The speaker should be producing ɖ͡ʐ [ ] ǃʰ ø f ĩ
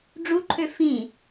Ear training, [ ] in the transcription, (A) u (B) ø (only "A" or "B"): A